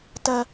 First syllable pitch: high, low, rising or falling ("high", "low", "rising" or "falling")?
low